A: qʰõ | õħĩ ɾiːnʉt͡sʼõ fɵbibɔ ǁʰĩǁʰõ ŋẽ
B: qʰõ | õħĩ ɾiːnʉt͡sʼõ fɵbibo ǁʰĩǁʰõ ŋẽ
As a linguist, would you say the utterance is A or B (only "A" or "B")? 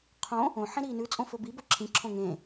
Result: B